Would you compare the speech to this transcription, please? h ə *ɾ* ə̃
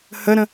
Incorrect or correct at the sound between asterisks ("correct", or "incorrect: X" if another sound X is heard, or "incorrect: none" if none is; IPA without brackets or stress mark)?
correct